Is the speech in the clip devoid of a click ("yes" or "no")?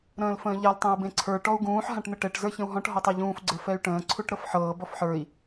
no